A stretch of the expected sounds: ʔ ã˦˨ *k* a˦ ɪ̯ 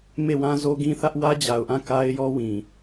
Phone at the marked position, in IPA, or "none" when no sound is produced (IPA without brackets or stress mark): k